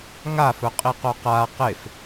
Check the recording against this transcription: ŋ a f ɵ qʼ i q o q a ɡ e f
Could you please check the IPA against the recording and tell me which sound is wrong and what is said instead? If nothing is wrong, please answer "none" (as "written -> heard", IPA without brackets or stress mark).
ɡ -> q